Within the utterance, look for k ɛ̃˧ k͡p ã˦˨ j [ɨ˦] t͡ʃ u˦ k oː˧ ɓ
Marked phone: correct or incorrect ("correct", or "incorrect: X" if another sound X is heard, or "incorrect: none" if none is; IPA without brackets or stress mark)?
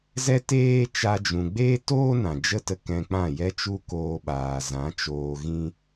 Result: incorrect: ɛ˦